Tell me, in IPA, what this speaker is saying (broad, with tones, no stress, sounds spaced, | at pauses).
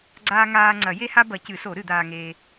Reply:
ɡ͡ǀ aː˦ ŋ aː˦ ŋ͡ǀ ɐ˨˩˦ j e˦ h a˦ b ɐ˨˩˦ c ɨ˨˩˦ s o˨˩˦ ɾ ɨ˨˩˦ d̪ aː˦ ŋ eː˦